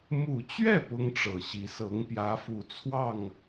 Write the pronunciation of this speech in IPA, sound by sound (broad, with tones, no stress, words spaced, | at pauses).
mu˨˩t͡ɕɥɛ˥˩ pʊ˥ŋʈ͡ʂɤ˨˩ɕi˧˥ sɤ˧˥ŋpjä˧˥fu˨˩t͡sʰwɑ˥˩ŋ